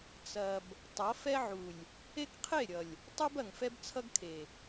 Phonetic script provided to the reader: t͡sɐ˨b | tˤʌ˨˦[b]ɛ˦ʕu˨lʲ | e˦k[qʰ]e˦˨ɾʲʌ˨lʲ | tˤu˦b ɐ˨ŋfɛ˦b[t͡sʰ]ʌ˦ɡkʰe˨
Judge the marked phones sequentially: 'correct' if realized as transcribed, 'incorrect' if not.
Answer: incorrect, correct, correct

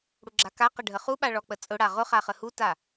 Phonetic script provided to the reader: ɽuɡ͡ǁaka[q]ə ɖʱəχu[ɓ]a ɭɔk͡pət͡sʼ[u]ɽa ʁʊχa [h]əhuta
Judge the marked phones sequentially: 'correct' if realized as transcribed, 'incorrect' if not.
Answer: correct, correct, incorrect, incorrect

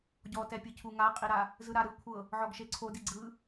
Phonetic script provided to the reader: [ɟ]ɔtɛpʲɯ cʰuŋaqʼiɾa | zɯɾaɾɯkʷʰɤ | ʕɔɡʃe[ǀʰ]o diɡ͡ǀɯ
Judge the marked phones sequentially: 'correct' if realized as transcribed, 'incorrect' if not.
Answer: correct, correct

